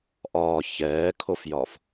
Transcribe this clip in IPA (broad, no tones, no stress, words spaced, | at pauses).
ʔɒː çɛːkʰofjɒf